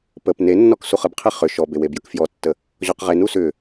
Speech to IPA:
p ə p n e nː ɔ k s u χ ə b qʰ e χ ʏ ʃ ɔ b e w e b j ə k f j ɔ tː ə | ʑ ɔ q ʁ e n u s ʏ

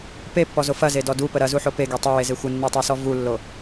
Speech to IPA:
p e pː ɔ z o f ɐ z e d ɔ d u p ə ɾ ɐ z u ħ o p e ɡ e tˤ ə w e z e xʷ ə nː u tˤ e s ɔ v u lː o

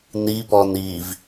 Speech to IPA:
n i p ɔ n i v

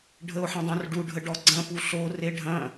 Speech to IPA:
ɖʱ ə o̯ ħ ə̃ dˤ õ r ɖ u ɖʱ ə ɖ ɔ ɡ͡ǀ ɐ̃ p u ɬ o r e ɖʱ ɐ̃

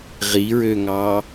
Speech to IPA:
ʁ i ɹ ø ŋ ɑ

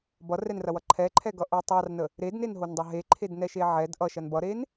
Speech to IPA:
b ʌ r ɛ n r ɐ w ʌ ǃʰ ɛ ǃʰ ɛ ɡ ʌ ʔ o tˤ ɑ r n ə | ɾ e d n e n ɦ o n dˤ ɐ ɦ e ǃʰ e d n ɛ ʃ e ʕ ɛ d ʔ ʌ ʃ ɐ n b ʌ ɾ e n

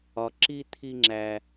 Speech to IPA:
ɒ˨ ǁ i˦ t̪ʰ i˧ ŋ͡ǁ æ˨

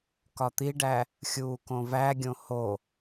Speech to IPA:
k ɒ t̪ i ɖ æ | xʲ uː k õ v æ ɡʲ õ h o

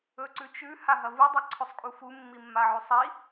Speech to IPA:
ɵ ǀ ʉ t͡ʃ ʉ h a ɦ ɐ v u dˤ ɐ ǀʰ ɵ sˤ kʼ u f u mː i mː a ʕ ʉ sˤ i

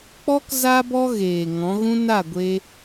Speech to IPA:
k͡p ɔ˦ k z a˧ b ɔ˧ ɣ eː˨ ŋ ɔ̃˨˦ ɣ ũ˦ n a˦˨ ɡʷ e˧

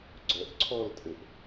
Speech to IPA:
ɡ͡ǀ œ ʔ ǀʰ ɔ l tʼ ɘ ʔ

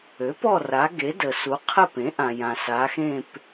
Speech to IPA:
ø˩˥ p ɔ˦˨ r a˩˧ ɡ e˩˧ d ə˩ s u˩˧ qʰ ə˦˨ p ẽ˩˥ ʔ ã˩ j ã˩ s a˩˧ x ẽ˦˨ p

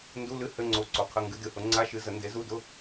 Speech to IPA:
n d u˧˥˧ l ɨ˧˥˧ h ɘ˧˥˧ ŋ͡ǀ o˨˥ ǀ o˨˩˦ qʰ ə˧˥˧ ŋ ɡ ɨ˨˥ d ɨ˨˥ h ʊ˨˥ ŋ͡ǀ a˧˥˧ ʃ ɨ˨˥ z ə˨˩˦ n d e˨˥ z u˧˥˧ d ʊ˧˥˧

